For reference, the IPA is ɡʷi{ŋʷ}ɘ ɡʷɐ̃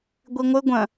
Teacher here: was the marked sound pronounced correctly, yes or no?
yes